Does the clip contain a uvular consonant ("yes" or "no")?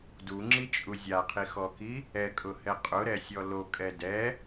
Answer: yes